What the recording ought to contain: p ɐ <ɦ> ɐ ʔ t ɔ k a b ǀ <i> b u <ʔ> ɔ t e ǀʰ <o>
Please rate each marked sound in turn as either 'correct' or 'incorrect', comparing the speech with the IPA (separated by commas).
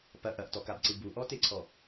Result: incorrect, incorrect, correct, incorrect